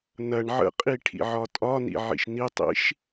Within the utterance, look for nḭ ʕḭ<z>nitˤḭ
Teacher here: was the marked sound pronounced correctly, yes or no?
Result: no